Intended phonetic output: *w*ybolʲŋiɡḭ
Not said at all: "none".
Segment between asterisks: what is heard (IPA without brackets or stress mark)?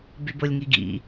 b